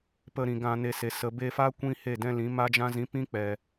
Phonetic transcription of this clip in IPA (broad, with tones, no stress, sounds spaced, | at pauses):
p ə˧ ɾ ĩ˨ ɡ ã˧ n e˧ s e˨ s ə˨ b e˧ f a˦ kʷ ĩ˦ h e˦˨ d ɛ̃˦ l ĩ˨˦ m a˦ d͡ʒ ã˦ z ĩ˨˦ p ĩ˦ k͡p ɛ˨